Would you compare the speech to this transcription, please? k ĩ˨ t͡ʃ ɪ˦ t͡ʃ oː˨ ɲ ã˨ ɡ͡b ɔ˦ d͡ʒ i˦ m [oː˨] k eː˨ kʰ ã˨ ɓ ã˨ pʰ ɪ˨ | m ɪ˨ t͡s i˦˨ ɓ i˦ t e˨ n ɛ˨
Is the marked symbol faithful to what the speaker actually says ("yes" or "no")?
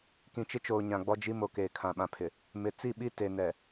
no